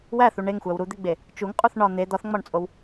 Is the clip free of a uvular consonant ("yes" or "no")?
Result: no